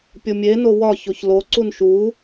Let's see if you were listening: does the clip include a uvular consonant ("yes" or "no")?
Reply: no